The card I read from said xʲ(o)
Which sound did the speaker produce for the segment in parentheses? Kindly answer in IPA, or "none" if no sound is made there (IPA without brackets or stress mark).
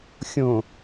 õ